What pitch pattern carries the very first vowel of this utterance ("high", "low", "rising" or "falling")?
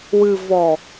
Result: low